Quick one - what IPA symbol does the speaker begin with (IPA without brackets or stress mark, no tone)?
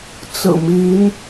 t͡s